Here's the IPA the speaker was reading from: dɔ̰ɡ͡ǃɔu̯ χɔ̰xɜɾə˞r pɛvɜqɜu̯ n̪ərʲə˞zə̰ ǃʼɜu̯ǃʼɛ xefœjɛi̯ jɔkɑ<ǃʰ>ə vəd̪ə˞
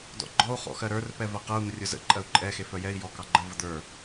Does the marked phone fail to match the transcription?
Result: yes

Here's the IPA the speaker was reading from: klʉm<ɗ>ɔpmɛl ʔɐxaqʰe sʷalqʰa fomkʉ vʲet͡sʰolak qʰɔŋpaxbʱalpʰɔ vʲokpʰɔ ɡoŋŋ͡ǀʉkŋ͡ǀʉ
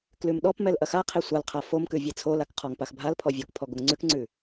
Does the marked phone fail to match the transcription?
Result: no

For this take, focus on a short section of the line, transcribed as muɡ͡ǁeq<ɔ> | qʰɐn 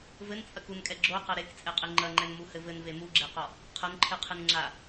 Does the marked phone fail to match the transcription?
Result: no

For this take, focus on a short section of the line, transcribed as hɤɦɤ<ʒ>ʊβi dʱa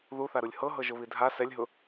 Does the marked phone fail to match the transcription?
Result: no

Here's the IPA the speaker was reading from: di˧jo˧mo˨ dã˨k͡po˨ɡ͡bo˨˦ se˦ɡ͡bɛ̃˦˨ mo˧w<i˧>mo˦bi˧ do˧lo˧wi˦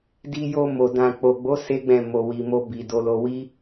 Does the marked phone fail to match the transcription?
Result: no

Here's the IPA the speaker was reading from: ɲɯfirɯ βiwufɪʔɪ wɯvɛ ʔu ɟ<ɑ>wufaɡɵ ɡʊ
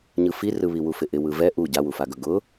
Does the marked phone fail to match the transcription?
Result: yes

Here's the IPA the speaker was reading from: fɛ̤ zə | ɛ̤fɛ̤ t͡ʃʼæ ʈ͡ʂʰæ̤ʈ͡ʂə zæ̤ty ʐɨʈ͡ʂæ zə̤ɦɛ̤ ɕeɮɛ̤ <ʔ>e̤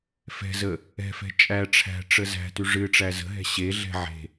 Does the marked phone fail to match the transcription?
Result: yes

